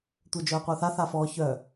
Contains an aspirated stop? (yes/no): no